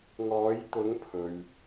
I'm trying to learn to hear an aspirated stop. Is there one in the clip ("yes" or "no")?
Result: yes